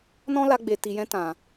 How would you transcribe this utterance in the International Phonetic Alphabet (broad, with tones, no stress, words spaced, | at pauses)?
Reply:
nɔ̃˦la˧ɡ͡be˨ ti˨jɛ̃˧ tã˨